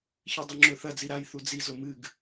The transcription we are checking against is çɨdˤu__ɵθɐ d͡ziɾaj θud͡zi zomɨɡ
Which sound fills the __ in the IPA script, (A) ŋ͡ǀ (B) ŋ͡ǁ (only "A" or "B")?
B